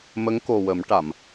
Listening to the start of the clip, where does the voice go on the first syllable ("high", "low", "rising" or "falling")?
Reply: rising